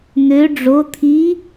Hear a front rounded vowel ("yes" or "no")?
yes